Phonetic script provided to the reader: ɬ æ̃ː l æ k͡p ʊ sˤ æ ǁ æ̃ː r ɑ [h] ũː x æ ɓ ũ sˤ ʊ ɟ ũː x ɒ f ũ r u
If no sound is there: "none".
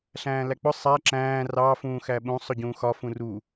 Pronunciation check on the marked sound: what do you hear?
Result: f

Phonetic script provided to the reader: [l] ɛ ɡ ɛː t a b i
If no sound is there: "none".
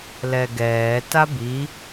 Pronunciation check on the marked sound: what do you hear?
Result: l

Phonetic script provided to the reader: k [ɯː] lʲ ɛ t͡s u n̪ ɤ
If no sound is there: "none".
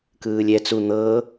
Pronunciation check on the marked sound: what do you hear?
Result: ɯː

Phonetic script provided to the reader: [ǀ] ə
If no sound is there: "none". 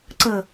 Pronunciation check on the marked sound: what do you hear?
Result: ǀ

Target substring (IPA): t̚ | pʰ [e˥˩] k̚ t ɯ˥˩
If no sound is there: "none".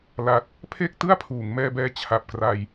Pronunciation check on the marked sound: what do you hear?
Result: e˥˩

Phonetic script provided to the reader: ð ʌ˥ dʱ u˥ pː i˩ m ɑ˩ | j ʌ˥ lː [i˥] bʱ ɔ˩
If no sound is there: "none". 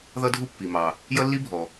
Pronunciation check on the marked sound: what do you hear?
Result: i˥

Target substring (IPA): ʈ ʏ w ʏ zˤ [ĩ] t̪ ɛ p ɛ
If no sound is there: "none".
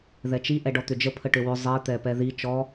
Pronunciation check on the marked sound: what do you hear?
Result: i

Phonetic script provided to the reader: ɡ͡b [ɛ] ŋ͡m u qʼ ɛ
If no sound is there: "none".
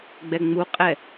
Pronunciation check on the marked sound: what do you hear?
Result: ɛ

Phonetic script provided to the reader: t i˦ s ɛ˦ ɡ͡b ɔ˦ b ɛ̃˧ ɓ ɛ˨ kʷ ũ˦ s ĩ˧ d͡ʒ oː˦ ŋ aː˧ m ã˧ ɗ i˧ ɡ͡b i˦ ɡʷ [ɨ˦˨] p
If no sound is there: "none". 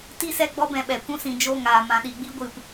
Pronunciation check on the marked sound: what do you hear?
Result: ɨ˦˨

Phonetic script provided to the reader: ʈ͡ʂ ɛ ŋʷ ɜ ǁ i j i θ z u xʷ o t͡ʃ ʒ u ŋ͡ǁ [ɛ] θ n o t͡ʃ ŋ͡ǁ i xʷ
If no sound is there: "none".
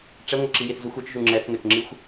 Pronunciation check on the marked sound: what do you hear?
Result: ɛ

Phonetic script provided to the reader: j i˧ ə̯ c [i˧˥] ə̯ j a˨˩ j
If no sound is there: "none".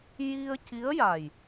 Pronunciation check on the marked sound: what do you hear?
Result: i˧˥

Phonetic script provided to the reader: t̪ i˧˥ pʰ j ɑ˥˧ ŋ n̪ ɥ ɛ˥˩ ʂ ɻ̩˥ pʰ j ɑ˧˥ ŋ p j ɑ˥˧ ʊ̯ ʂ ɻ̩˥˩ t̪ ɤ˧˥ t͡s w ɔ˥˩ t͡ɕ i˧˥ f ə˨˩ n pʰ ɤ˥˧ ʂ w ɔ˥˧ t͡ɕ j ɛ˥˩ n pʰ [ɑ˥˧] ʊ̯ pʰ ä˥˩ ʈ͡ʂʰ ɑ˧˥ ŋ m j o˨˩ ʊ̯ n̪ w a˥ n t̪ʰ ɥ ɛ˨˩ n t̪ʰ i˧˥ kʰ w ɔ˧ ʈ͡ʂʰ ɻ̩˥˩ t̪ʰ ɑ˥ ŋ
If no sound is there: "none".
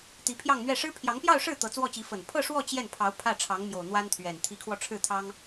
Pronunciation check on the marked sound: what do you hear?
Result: ɑ˧˥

